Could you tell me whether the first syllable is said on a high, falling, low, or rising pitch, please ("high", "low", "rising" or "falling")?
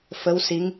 rising